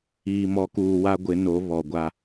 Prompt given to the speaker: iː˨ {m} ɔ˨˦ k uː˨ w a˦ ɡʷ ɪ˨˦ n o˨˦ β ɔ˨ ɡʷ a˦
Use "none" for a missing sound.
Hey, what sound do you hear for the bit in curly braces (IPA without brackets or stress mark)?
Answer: m